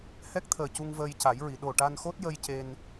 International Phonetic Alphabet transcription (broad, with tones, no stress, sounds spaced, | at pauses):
h ɛ˦˥ k̚ t̪ʰ əː˨˩ c u˧ ŋ v əː˧ j c a˨˩˦ j ɹ i˨˩˨ ɗ o˨˩ ʈ a˧ n x o˦˥ t̚ j ə˧ j c e˧ n